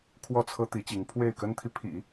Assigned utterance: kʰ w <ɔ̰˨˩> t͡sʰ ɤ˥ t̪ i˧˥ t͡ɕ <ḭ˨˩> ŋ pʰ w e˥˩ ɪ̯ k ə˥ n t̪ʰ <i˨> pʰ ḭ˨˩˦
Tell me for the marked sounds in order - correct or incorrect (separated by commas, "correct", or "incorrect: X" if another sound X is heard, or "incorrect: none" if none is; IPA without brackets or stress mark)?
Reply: incorrect: ɔ˥˩, incorrect: i˧˥, correct